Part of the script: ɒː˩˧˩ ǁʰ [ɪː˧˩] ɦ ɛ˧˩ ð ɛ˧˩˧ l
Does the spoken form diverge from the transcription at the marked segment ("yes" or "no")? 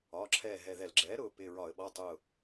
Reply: yes